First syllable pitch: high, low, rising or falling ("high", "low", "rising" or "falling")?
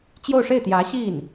falling